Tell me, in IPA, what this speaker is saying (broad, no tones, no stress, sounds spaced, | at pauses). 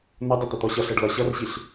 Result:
n ʌ dˤ ʊ t̪ ə t̪ ɔ ɕ ʌ ɬ ɜ ɖ l ɒ ɕ ʌ r ɕ i ɬ